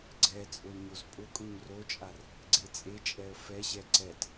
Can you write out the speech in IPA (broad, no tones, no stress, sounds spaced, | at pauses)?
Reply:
ɡ͡ǀ ɛ t͡sʼ ʊ l ɲ o z pʼ ʊ kʼ ʊ ɲ r o t͡ʃʼ a r | ɡ͡ǀ e t͡sʼ e t͡ʃʼ ɛ ə̯ f ɛ ɕ ɛ ǀ ɛ t